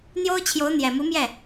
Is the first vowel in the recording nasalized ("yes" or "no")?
no